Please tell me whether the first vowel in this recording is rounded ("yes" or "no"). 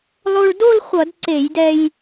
yes